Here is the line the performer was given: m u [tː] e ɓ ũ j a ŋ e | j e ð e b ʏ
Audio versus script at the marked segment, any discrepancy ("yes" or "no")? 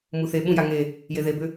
yes